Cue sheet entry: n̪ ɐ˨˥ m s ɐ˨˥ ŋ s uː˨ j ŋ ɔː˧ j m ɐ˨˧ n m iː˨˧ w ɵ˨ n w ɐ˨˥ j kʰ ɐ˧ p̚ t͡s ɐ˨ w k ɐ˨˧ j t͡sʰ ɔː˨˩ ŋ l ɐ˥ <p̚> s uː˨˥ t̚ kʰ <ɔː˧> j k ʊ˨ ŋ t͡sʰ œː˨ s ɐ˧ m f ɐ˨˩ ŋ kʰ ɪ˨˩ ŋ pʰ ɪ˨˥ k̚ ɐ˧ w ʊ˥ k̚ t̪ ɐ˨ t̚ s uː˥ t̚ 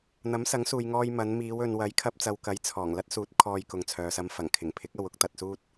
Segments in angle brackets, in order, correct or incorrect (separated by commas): incorrect, correct